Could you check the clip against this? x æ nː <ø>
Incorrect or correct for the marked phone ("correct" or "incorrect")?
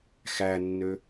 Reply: correct